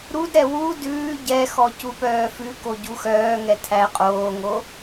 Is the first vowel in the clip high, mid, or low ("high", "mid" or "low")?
high